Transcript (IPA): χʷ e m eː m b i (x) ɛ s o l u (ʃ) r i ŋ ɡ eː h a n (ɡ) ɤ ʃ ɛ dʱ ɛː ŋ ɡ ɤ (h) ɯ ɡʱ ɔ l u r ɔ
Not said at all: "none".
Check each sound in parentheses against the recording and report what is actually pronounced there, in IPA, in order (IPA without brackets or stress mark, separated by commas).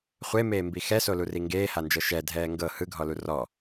x, none, d͡ʒ, h